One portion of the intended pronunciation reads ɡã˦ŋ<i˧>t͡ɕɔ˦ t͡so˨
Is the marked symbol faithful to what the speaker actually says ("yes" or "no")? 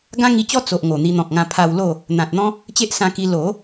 yes